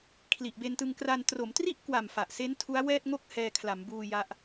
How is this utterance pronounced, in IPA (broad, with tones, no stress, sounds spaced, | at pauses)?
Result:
kʰ l i˨˩ ʔ b e˧ n t ɯ˧ ŋ k r a˧ n t r o˩˦ m t r i˥˩ ʔ k w a˨˩ m f a˨˩ ʔ s e˦˥ n tʰ u˦˥ a̯ w ɛː˥˩ t̚ ŋ o˥˩ k̚ h ɛː˧ kʰ l a˩˦ m b uː˧ j a˦˥ ʔ